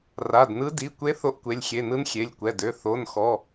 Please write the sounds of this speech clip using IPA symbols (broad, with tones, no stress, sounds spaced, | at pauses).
r a˩˧˩ d n ɯ˧˥ d i˩˧˩ kʷ e˧˥ θ o˧˥ ʔ kʷ e˩˧˩ lʲ xʲ e˩˧˩ n ɯ˧˥ n xʲ e˩˧˩ lʲ kʷ ɛ˩˧˩ d ø˩˧˩ θ o˩˧˩ n x ɔ˩˧˩